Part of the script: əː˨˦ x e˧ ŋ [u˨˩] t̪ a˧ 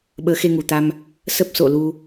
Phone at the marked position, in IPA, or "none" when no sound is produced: u˨˩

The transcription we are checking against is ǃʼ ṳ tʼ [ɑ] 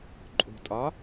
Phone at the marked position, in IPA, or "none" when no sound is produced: ɒ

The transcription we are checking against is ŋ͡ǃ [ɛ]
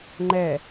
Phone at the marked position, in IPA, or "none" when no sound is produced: ɛ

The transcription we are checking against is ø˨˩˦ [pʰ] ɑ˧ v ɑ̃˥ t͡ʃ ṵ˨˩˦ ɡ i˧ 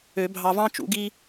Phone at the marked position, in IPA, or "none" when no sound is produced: bʱ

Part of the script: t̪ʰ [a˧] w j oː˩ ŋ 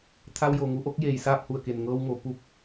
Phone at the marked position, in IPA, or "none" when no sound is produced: a˧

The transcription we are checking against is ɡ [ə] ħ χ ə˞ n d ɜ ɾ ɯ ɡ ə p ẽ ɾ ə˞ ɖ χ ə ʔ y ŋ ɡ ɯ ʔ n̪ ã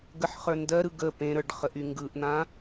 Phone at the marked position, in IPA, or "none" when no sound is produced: ə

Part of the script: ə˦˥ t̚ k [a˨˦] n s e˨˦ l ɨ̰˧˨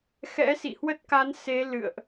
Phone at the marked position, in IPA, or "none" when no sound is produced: a˨˦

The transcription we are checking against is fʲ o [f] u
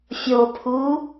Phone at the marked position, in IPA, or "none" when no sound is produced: pʰ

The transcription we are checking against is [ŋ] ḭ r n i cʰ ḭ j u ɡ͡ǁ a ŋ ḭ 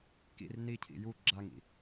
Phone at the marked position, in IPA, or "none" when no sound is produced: k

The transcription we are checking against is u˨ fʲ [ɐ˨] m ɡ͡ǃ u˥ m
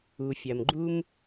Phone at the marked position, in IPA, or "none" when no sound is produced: ɐ˨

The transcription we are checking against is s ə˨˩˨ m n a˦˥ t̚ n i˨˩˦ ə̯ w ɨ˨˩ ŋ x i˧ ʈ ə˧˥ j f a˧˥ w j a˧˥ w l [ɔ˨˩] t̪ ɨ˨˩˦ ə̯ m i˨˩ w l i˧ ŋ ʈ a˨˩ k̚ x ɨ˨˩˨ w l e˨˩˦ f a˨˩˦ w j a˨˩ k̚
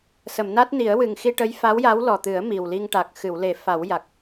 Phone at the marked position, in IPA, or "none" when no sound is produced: ɔ˨˩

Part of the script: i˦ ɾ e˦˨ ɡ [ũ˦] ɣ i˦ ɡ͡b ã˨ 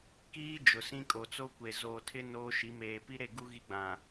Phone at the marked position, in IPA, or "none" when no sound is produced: u˦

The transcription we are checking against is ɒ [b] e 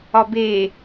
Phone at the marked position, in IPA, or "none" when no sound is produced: b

